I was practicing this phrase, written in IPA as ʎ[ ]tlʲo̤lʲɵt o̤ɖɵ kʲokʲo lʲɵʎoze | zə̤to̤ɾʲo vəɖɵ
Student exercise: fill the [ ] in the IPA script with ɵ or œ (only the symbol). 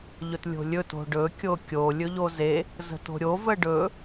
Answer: ɵ